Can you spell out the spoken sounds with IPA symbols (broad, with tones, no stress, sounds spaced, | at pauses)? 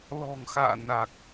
l ɔ̤˨˩ ŋ x a̰ː˧˨ n a˨˩ k̚